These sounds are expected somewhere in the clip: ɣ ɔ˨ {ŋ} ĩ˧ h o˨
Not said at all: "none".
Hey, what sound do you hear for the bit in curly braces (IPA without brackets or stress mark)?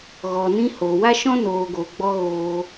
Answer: n